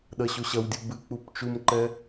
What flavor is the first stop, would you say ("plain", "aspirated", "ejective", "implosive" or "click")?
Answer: implosive